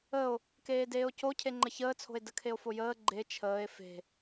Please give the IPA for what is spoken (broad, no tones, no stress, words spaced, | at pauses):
əo̯ | keːdeːo̯co cʰeŋ͡ǃəçəːt͡sʰo̤e̯ dəkʰeo̯fojəː ɡ͡ǃe t͡ʃʰəːe̯ fe̤